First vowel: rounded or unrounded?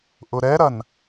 rounded